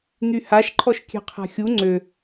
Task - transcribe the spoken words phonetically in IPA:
n̪ y h a ʃ ǃʰ ɔ ʃ kʲ ɛ̤ qʰ a̤ xʲ u ŋ͡ǀ ø

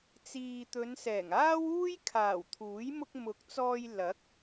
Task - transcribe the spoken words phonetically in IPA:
t͡s iː˨ t̪ ɵ˨˧ n s ɛː˨˩ ŋ aː˥ w uː˥ j kʰ aː˨˩ w t̪ʰ uː˨˥ j m ʊ˧ k̚ m ʊ˨˥ k̚ t͡s ɔː˧ j l ɐ˨˥ k̚

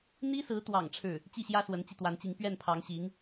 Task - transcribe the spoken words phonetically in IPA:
n̪ i˥ s ɹ̩˧˥ t̪ w ɑ̰˨˩ ŋ ʈ͡ʂʰ ɻ̩˥˩ | t͡ɕ i˥˩ ɕ j ä˥ s w ə˧˥ n t͡ɕ i˧ t̪ w a˧˥ n t͡ɕ i˧˥ ŋ p ɥ ɛ˥˩ n pʰ ɑ˧˥ ŋ ɕ i˧˥ ŋ

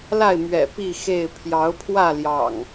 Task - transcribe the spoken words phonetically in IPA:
l a˥˨ ɪ̯ m ɥ ɛ̰˨˩ p i˥˨ x e˥˨ ɪ̯ pʰ j ɑ˨˦ ʊ̯ pʰ w ä˥˨ l j ɑ̰˨˩ ŋ

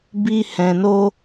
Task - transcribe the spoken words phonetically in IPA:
b i˧ h ɛ̃˨ n o˧

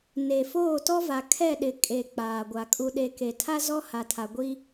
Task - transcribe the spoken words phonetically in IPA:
n e˨ f oː˦˨ t ɔ˦ v a˨ kʰ ɛ˦˨ ɗ ɪ˨ kʼ e˨ k͡p aː˨ ɡʷ a˨ kʼ u˨ ɗ e˨ k e˨ tʰ a˦ z ɔ˦ h a˨ tʰ a˨ ɡʷ i˦

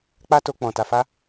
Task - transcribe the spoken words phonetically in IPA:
k͡p a˦ t o˧ k͡p ɔ̃˨ t a˨ f a˧

